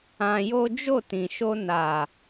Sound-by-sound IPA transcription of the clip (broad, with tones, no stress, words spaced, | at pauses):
ã˧jo˦ d͡ʒo˦˨tĩ˨ʃo˧ na˨